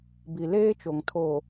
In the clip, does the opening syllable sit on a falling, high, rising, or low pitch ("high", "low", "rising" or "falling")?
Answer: low